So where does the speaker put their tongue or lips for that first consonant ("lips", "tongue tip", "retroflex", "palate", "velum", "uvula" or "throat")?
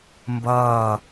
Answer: lips